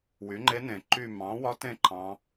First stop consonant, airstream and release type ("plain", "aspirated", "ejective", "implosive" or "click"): click